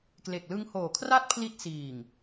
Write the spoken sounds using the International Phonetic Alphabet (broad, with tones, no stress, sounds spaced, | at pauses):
k l e˨˩ k̚ l ɯ˦˥ ŋ h oː˨˩ kʰ r a˥˩ t̚ pʰ l i˦˥ t̚ s iː˨˩ ŋ